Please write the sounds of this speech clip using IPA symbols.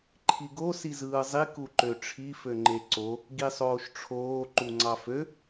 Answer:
ǃʰ i ɡ o s i z ɯː zˤ i k u ǃ ø ʈ͡ʂʰ i f ø ŋ͡ǃ e ǀ o | ɡ i sˤ oː ʃ ʈ͡ʂʰ oː ǃ u ŋ͡ǀ ɑ f ø

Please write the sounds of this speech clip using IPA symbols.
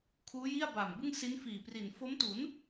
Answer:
kʰ uː˦˥ j i˥˩ a̯ b a˨˩ m b ɯ˥˩ ŋ s i˦˥ n f iː˨˩ p r i˨˩ n f o˦˥ m t u˩˦ n

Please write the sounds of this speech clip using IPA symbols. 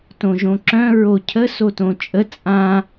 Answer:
t õ ʒ õ ǁ œ̃ ɹ o cʰ ə s o t õ t͡ʃʼ ə t͡sʼ ã

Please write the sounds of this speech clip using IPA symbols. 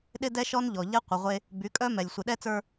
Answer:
ɗ ɪ˦ d ɛ˦ ʃ ɔ˦ n ʎ ɔ˨ ʎ ɛ˦ qʷ ɪ˨ ʁʷ e˦ | b y˨˦ kʼ œ˦ m ɛ˨ lʲ sʷ ɪ˨ ɗ ɛ˦ t͡s ə˞˦

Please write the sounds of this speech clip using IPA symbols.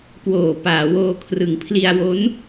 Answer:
k w oː˨˩ p aː˩˦ w oː˧ kʰ r ɯ˩˦ ŋ pʰ l i˧ a̯ w o˦˥ n

